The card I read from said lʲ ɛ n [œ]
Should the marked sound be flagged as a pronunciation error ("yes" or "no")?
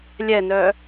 no